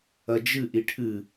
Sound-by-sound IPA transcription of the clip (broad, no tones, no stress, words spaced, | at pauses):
ɐd͡ʒɨ ʔiʈʰɨ